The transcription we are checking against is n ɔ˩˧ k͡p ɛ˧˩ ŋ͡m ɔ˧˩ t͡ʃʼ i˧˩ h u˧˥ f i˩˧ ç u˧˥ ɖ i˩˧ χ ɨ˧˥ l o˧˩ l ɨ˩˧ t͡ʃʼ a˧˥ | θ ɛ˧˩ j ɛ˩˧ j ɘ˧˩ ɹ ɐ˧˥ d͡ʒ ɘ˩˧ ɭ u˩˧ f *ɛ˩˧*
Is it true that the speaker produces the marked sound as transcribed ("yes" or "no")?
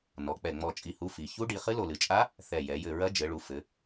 no